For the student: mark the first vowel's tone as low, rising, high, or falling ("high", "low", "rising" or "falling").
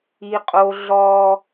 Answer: high